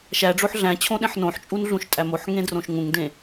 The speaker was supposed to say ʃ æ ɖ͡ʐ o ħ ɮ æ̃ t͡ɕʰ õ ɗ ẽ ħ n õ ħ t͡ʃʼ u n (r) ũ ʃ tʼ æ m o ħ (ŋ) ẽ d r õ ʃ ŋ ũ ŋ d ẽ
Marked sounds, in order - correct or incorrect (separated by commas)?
incorrect, correct